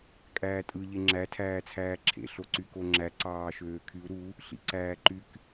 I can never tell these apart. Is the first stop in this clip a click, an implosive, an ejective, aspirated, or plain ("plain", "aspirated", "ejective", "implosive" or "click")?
ejective